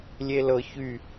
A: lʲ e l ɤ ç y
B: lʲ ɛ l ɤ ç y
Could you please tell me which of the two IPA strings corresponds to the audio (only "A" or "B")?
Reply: A